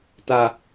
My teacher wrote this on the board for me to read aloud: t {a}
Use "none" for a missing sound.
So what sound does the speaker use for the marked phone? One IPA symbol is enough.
a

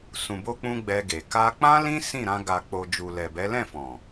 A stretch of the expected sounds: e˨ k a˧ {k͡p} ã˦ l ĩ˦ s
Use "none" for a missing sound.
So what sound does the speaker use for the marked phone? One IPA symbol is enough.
k͡p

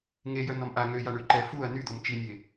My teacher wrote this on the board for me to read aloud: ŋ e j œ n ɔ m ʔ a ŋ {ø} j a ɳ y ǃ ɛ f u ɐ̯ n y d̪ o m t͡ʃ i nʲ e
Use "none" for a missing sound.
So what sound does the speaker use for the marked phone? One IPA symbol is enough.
ø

